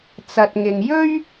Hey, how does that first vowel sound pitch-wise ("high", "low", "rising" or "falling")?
low